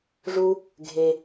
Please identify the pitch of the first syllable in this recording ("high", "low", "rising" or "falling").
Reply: high